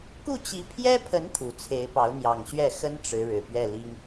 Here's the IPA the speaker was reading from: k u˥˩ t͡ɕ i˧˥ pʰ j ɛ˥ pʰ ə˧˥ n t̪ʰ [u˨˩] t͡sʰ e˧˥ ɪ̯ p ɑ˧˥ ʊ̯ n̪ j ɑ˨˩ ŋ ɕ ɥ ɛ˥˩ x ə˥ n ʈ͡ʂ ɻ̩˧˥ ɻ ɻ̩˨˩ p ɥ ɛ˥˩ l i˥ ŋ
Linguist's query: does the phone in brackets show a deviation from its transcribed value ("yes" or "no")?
no